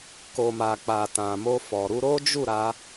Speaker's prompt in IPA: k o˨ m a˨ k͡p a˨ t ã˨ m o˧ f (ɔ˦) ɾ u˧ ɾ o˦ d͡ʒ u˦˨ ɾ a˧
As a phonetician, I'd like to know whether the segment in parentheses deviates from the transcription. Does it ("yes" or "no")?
yes